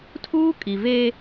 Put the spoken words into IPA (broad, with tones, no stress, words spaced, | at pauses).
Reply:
tʰuː˦ kʼi˨ veː˦